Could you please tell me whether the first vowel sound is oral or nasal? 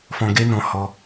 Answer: nasal